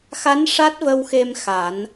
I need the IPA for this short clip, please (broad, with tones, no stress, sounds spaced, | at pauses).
x a˧˥ n ʂ a˦˥ t̚ v ə˧ w x e˧ m x a˨˩˦ n